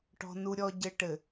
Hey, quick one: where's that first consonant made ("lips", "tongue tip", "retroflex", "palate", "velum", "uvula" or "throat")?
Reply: retroflex